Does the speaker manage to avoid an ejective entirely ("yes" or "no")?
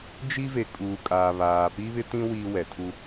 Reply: no